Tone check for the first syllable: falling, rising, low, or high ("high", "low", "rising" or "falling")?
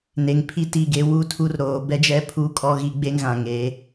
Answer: low